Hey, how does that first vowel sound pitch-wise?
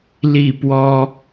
falling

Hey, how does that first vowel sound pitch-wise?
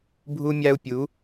high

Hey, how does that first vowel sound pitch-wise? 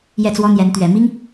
falling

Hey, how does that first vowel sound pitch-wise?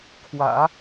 low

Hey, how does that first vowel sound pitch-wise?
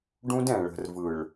high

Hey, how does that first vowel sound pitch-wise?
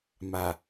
low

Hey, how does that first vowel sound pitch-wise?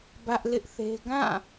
high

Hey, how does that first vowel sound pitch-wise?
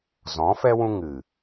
rising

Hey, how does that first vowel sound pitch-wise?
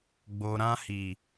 low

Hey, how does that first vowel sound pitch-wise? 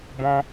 high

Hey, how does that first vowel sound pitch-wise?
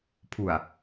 low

